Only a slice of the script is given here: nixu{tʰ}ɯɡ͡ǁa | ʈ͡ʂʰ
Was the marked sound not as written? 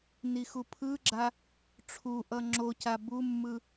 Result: yes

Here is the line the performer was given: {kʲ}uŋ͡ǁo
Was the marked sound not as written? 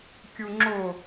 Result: no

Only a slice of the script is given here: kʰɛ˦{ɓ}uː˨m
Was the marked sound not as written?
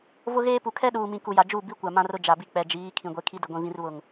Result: yes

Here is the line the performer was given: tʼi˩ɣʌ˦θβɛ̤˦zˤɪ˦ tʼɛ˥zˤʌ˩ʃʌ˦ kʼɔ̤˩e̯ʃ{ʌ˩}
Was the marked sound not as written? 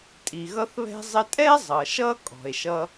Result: yes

